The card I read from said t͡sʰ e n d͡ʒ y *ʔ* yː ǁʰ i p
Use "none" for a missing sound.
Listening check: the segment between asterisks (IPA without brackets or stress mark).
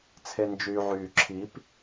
ʕ